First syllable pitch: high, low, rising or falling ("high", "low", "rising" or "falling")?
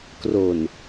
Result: low